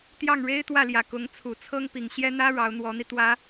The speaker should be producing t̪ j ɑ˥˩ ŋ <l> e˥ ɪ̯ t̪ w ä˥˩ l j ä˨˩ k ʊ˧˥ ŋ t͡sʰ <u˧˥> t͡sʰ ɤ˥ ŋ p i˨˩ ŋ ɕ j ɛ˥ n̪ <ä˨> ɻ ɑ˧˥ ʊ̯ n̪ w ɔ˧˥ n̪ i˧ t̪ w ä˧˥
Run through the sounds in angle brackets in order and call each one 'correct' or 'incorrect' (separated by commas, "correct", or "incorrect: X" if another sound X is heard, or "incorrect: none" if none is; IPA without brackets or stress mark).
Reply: incorrect: ɻ, incorrect: u˨˩, incorrect: ä˥